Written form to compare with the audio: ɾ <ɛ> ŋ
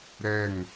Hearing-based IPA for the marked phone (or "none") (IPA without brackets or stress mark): ɛ